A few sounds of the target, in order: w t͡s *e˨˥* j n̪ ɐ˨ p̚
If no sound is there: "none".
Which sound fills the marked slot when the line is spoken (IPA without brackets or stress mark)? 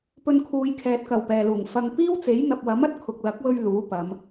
e˨˥